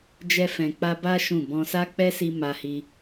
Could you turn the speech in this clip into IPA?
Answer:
d͡ʒ ɛ˧ f ɛ̃˨ k͡p a˧ b a˦ ʃ ũ˦˨ b ɔ̃˧ s a˦ k͡p ɛ˦ s i˧ m a˧ h i˧

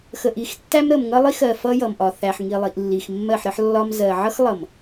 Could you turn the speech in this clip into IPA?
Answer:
x ə˨ ʔ i˨ x tː æ˦ m ɾ ə˨ m ŋ ʌ˦ lˠ i˦ x ɜ˨ f ʌ˦ j ʌ˨ m ʔ ɒ˨ θ æ˨ ħ ŋ i˨ lˠ i˨ ʔ lː i˨ x mː ɜ˦˨ ħ ɾ ə˦ ħ lː ɒ˦ m z ɜ˨ ʕ ʌ˦ x lˠ ʌ˨ m

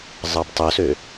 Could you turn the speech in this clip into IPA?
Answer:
zˤ ɑ b tˤ o s ø

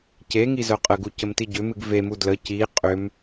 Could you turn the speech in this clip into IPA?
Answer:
c e ŋ i z œ qʼ ə ɡ u c ə m t i ɟ ʏ m ɨ ɡ v e m u d l ə c i qʼ ʏ m

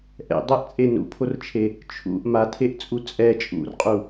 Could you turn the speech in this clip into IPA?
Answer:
ʔ ɛ̰ dˤ ɛ ʔ t͡sʼ e n ṵ pʰ o r t͡ʃʰ e | t͡ʃʰ ṵ ʔ m a tʰ e ʔ t͡sʼ u t͡sʼ ɛ t͡ʃʼ ṵ r qʼ u

